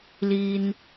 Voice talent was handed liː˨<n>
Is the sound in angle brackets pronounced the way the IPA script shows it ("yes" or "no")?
yes